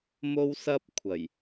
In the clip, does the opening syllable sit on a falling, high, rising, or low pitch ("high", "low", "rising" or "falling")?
high